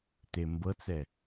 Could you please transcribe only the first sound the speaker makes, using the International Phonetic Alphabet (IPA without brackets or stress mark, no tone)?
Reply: t